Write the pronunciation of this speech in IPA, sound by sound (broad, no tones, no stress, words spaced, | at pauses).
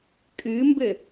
kʼɨmbɘ